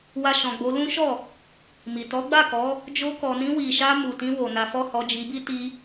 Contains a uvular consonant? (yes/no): no